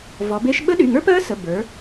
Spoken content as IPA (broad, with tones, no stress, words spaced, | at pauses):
vɔ˩˧be˦˥ʃ ɓə˦˥ɗy˩˧˩ ŋə˞˦˥pɜ˦˥ sə˩˧˩ bə˞˩˧